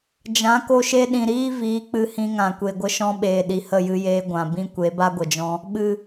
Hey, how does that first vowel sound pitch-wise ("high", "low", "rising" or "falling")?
rising